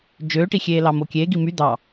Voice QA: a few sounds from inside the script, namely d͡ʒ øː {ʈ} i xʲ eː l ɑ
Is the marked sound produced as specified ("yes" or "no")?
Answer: yes